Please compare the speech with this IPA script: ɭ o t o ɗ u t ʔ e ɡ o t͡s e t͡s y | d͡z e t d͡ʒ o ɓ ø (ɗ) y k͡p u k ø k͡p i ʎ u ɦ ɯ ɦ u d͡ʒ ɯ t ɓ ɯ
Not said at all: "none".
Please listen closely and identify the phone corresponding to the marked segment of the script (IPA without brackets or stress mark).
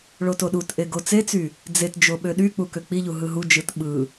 ɗ